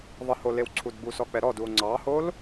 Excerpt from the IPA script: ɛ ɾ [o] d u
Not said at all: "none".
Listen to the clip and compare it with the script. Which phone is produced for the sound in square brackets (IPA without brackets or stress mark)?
ɔ